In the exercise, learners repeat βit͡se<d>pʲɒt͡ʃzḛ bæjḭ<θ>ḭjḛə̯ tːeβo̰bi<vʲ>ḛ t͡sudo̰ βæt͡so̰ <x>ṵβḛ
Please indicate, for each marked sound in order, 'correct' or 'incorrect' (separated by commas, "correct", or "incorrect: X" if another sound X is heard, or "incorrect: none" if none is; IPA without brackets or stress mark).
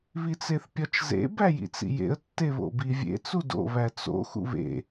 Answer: incorrect: θ, incorrect: t͡s, correct, correct